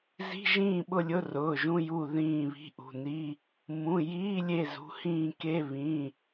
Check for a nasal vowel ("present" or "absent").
present